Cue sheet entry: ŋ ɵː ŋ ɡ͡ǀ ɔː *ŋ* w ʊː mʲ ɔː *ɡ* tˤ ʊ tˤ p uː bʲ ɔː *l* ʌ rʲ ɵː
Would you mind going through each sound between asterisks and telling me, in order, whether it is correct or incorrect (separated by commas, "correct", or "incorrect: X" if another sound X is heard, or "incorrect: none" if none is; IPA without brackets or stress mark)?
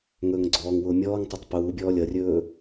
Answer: correct, incorrect: ŋ, incorrect: lʲ